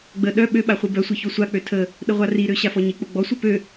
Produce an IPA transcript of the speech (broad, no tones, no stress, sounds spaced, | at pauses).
ɡ͡b ə ɗ œ ɓ ø ɓ a χʷ i b œ sʷ i ç o sʷ a k͡p ø tʰ ə | ɗ ə ʁʷ a r i ɾ ø ɕ a f ɔ ɲ i k͡p o ɡ͡b ɔ sʷ œ p ø